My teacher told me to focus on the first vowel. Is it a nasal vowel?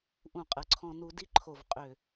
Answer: yes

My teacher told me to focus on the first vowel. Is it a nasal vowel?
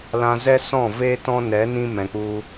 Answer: yes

